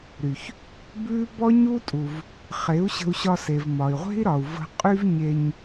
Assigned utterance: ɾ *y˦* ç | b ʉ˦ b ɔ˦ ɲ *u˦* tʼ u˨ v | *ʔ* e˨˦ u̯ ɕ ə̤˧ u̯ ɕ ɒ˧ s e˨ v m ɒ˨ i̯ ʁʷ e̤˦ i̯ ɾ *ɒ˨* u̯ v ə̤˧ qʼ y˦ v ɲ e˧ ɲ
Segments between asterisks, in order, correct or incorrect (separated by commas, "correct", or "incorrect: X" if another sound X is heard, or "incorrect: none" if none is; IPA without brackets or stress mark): incorrect: y˨, correct, incorrect: χ, correct